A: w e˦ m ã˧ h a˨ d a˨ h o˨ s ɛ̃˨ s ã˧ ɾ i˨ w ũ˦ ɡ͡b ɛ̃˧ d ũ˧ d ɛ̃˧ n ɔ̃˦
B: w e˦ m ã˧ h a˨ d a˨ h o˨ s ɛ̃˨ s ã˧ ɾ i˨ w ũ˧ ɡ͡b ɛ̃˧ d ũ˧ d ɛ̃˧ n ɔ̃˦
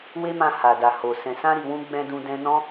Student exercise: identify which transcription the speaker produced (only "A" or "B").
B